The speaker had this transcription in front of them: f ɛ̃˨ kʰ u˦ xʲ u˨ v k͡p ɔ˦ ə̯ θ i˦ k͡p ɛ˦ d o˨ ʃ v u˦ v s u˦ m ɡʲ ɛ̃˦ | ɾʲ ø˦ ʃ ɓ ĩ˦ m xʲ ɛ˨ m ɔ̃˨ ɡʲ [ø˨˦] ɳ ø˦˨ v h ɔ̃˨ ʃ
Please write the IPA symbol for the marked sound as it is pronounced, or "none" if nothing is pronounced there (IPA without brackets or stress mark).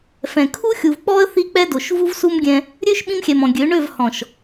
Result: ø˨˦